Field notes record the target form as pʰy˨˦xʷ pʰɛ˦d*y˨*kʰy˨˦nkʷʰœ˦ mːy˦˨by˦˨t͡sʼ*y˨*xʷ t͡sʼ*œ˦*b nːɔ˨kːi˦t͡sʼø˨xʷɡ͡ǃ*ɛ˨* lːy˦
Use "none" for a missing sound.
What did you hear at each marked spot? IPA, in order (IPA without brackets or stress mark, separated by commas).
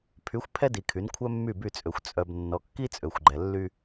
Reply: i˨, ø˨, œ˨, ɛ˨